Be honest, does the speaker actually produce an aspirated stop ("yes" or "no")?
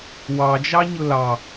no